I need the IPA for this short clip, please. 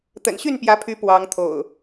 t̪ ə̰˨˩ n ɕ y˥˨ n p j ä˨˦ pʰ y˨˦ p w ɑ˨˦ ŋ t̪ʰ o̰˨˩ ʊ̯

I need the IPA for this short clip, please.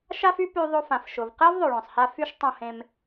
ʃ a˥ f y˥ p y˧ ðˤ o˧ f ã˩ f ʃ ʊ˩ v q ɛː˥ v ðˤ o˩ ɭ œ̃ː˩ sˤ h a˧ f y˥ ʃ tˤ õ˧ h ẽ˧ m

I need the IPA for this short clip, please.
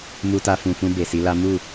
m u˧ t a˧ f ũ˨ f ũ˧ b e˨ s i˨˦ l a˦ m u˦˨

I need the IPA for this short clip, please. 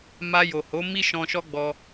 m a˧ j o˨ h o˨˦ m i˦ ʃ ɔ̃˧ ʃ ɔ˦ ɡ͡b ɔ˧

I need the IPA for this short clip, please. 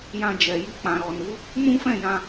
j ã˧ d͡ʒ ɛ˨ j i˧ k͡p ã˨ ɾ ɔ˨ n u˨˦ | m ũ˦ f ɛ̃˦˨ j ã˧

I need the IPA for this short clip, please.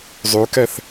zˤ ʉ k ɛ θ

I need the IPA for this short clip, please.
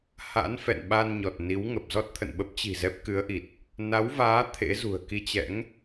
h a̰˧˥ n f ɛ̰˧˨ n ɓ a˧ n ɲ ɔ˨˩ t̚ n i˨˦ w ŋ ə˨˩ p̚ z ɔ˦˥ t̚ t̪ʰ ə̰˧˨ n ɓ ə˦˥ p̚ t͡ɕ i̤˨˩ z ɛ˦˥ p̚ k ɨ˨˦ ə̯ ʔ i˨˩ t̚ | n a˨˦ w v aː˨˦ t̪ʰ ḛ˧˥ z ṳ˨˩ ə̯ k i˧ t͡ɕ ɛ̰˧˥ ŋ

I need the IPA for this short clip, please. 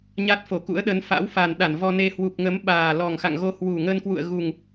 ɲ a˦˥ t̚ f o˧˩ k ṵ˧˥ ə̯ ɗ ə˨˦ n f a̰˧˥ w f a˨˩ n ɗ a˧˩ n v ɔ˧ n e˧ h w u˨˩ p̚ ŋ ə˨˦ m ɓ aː˨˩ l ɔ˨˩ ŋ x a̰˧˨ ŋ ɣ o˧ h w u˨˩ ŋ ə˧ n k w ṵ˧˨ ə̯ ɣ u˨˩ ŋ

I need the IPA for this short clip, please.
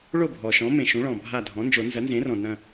ɭ o˥˩ bʱ ɔ˩ ʃ ɔ̃˩˥ m ẽ˩ ʃ ũ˩˥ ɭ ɔ̃˩ bʱ a˧˩ dʱ ɔ̃˩˥ n d͡ʒ o˨˩˦ n z ɐ˩˥ n z ẽ˩˥ r ɔ̃˩ n ɐ̃˧˩

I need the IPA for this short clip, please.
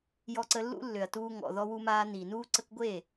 j ɔ˧ ǀ ə˧ lː ṵ˦ lː ø˨ ɐ̯ t uː˧ ŋ ɔ̰˨ ð ɔ˧ w u˧ m aː˧ n iː˨ n uː˦ ǀ ə˦ k ɡʷ e˦˨

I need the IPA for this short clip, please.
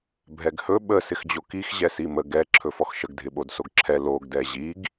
bʱ ɛ ɡ h ɵ ɓ ə s ɪ x d͡ʑ o k i x ʑ ɛ s i m ə ɡ ɛ ǁʰ ɵ f ɔ x ʃ ə ɡ dʱ ɪ ɓ o d s o ɡ ǁʰ ɛ l o ɡ d ɛ ʑ i ɡ

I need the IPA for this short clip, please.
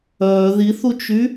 œː ð i θ u t͡ʃ y

